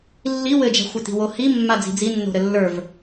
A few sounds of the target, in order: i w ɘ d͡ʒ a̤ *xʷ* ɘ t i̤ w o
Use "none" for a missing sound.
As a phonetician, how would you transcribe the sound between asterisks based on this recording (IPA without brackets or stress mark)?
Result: xʷ